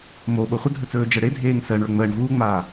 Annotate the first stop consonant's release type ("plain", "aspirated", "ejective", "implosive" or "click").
implosive